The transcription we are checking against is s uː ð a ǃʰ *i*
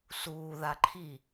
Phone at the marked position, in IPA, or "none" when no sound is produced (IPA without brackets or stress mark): i